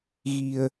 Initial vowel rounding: unrounded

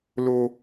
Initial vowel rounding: rounded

